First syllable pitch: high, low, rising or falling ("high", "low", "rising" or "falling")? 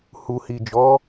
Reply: low